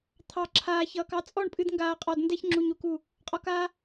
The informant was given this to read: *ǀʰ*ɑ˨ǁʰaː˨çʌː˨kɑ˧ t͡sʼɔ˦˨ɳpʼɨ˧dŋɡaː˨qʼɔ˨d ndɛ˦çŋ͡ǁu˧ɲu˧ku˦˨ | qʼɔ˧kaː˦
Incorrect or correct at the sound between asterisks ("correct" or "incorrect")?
incorrect